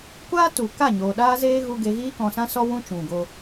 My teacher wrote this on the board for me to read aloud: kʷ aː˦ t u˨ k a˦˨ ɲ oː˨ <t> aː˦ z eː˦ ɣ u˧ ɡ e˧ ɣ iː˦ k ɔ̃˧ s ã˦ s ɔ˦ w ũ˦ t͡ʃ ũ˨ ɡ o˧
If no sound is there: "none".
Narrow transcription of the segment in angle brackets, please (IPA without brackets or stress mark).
ɗ